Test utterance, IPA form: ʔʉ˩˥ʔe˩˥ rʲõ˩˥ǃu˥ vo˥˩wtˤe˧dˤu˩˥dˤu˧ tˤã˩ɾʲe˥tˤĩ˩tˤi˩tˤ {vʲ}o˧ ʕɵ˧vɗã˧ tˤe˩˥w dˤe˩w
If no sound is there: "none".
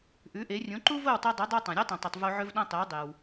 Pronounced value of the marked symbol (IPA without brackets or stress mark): v